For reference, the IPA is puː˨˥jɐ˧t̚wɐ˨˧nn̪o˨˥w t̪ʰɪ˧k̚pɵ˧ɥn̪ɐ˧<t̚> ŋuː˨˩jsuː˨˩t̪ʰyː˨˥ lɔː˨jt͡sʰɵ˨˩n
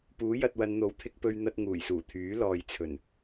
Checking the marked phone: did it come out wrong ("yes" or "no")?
no